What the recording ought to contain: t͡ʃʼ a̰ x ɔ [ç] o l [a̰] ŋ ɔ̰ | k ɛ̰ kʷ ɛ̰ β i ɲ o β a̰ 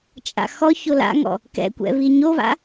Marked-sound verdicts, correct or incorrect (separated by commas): correct, correct